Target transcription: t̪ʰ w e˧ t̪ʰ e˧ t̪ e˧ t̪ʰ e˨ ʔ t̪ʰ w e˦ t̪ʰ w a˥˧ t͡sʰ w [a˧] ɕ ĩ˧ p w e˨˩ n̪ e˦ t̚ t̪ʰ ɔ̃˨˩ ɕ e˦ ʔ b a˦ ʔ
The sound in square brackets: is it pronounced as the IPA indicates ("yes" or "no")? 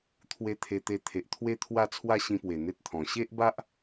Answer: no